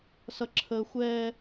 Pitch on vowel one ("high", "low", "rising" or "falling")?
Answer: low